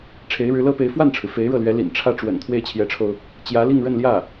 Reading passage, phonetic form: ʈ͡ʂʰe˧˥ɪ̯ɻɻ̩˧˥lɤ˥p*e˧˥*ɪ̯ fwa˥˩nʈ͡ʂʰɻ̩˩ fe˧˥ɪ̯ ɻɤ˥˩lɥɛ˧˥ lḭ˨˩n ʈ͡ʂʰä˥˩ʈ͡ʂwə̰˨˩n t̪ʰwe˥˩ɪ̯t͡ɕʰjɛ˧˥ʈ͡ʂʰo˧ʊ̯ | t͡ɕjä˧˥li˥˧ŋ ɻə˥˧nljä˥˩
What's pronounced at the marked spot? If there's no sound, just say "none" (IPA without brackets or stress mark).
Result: e˧˥